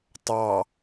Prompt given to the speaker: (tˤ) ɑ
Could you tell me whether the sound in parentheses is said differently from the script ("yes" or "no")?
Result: no